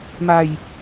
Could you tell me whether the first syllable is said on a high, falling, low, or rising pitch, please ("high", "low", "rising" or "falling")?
low